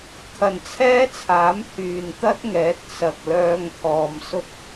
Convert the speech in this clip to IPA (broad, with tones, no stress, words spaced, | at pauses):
kʰɐ˨˩nt͡sʰɛː˥t͡sʰaː˨˥m hyː˨nt̪ɐ˥t̚ŋɛː˨˥t̚ sɐ˨k̚lœː˧ŋ t̪ʰɔː˨msʊ˥k̚